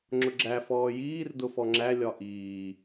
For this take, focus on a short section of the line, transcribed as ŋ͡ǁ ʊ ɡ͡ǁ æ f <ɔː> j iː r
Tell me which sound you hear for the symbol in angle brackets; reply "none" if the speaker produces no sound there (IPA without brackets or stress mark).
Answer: ɔː